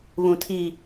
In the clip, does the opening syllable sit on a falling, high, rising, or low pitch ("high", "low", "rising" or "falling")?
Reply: low